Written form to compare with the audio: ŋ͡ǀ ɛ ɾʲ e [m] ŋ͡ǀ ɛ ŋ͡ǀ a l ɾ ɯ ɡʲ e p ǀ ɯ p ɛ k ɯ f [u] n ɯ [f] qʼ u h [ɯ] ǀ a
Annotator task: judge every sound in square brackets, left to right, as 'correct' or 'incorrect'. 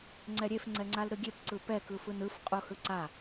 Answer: incorrect: f, incorrect: ɯ, correct, correct

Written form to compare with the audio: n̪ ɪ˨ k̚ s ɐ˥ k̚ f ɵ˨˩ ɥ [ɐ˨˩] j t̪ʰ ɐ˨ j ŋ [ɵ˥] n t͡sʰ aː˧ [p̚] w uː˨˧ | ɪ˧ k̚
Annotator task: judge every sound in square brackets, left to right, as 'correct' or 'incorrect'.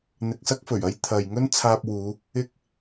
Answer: incorrect: ɐ˥, correct, correct

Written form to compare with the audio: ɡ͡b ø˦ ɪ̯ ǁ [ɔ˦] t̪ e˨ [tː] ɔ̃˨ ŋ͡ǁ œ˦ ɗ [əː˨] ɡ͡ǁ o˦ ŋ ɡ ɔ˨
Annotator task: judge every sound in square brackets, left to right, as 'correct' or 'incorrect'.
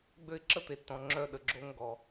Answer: incorrect: ə˦, correct, incorrect: ə˨

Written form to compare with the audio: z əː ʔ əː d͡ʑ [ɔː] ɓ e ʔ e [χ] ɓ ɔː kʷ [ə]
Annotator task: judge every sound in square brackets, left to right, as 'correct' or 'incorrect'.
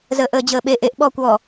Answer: incorrect: əː, incorrect: ʔ, incorrect: ɔ

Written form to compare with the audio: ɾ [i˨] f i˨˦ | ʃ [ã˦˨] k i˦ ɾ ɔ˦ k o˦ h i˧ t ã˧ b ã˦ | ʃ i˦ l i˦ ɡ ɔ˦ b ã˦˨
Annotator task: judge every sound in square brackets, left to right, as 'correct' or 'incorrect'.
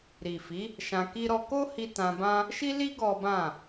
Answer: correct, incorrect: ã˧

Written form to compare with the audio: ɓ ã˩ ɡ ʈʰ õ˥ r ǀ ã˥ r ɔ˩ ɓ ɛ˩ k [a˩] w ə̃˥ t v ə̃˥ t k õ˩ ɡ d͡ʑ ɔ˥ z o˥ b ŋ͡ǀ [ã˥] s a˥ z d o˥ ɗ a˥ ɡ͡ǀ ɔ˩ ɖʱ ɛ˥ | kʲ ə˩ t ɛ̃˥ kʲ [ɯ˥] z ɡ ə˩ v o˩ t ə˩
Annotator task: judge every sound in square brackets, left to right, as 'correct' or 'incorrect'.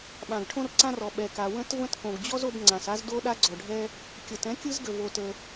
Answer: correct, incorrect: ã˩, correct

